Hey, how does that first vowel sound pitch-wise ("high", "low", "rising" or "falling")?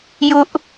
high